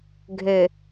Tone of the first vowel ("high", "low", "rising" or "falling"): low